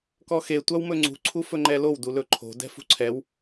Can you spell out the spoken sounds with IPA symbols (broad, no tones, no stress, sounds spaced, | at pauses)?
k ɔ x e tʷ a w m ɵ ŋ͡ǀ ṳ ǀʰ u f ɵ ŋ͡ǃ ɛ l o w d u l ɵ ǃʰ o̤ d ɛ̤ f ṳ ǀʰ ɛ w